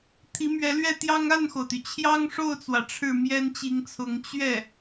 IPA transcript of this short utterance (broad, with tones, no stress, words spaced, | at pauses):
t̪ʰi˧˥mɥɛ˧˥lɥɛ˥˩t̪jɑ˥ŋ a˥˩nxo˩ʊ̯t̪y˩ t͡ɕʰjɑ˥ŋʂo˥˩ʊ̯t͡swä˩ ʈ͡ʂʰɻ̩˥˩mjɛ˥nt͡ɕi˧˥ŋt͡sʰʊ˧˥ŋ t͡ɕɥɛ˥˩